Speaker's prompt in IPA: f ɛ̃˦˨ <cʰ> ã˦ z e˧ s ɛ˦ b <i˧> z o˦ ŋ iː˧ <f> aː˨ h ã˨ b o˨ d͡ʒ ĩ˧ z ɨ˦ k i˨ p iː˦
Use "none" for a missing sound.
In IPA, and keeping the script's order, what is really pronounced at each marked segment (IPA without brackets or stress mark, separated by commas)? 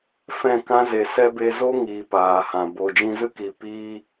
k, e˧, p